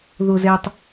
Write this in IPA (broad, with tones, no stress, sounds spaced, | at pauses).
ð o˨ z ɛː˨ tˤ